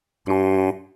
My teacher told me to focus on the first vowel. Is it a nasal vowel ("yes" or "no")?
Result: yes